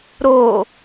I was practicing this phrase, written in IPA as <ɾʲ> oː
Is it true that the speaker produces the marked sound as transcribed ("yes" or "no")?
no